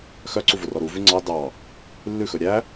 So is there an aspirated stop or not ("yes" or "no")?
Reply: no